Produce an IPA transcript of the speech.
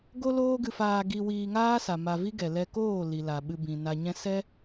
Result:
ɡo˦loː˦ɡɨ˧faː˧ ɡi˧wiː˧ŋaː˦ sa˨ma˧ vi˦ɡɛ˨ lɛ˧koː˦˨ li˨la˨ɓɨ˧bĩ˨ na˧ɲɛ̃˦ sɛ˦

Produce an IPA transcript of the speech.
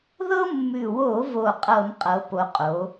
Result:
ðɤ˦mːʉ˨˩wo˧˩˧vo˨˩ qʼɤ˧˩˧mqʼɤ˩˧ po˩˧ qʼo˩˧

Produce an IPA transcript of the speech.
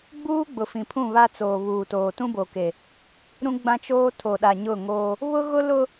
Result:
ɡ͡buː˦ɡ͡bʊ˨fĩ˨pʰũ˦˨ βa˦t͡soː˨ βuː˨toː˨ tũ˦bo˨ke˨ | ɾũ˦ ɡ͡bã˦t͡ʃoː˦ tʰo˨ɗa˨ɲʊ˦˨ ŋoː˦ | βʊ˦ɣʊ˦lʊ˦

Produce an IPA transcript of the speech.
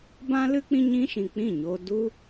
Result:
bã˦lɨ˦ k͡pĩ˦ɲĩ˦ʃĩ˨ k͡pĩ˦˨ɲoː˧ du˦

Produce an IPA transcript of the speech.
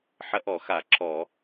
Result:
ħɐ˦ʔɔ˧˩˧xa˧˩˧ ǁɔ˧˩˧

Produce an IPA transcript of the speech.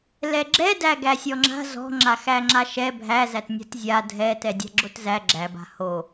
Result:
lɛɡ͡ǁɛdæ ɡæsʲɔŋ͡ǁa̤ zɔ̤ ŋ͡ǁaxæŋ͡ǁaʃɛ bʱæzætnʲa̤t zʲa dʱɛtɛ dʲa̤ɡ͡ǁotzæ ɡ͡ǁæba̤ ho

